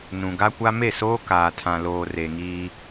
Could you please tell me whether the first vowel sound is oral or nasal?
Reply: nasal